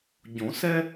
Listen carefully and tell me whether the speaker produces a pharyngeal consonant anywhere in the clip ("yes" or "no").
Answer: no